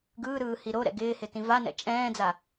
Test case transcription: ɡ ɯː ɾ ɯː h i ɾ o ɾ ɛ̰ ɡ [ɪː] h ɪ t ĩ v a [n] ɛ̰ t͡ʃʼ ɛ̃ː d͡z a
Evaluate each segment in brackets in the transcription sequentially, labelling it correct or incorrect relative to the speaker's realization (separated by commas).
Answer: correct, correct